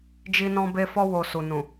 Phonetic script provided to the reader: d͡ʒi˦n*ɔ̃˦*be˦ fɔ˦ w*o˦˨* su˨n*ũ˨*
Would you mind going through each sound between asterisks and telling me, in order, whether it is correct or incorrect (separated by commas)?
correct, incorrect, correct